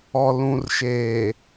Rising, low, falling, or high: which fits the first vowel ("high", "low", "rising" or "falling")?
low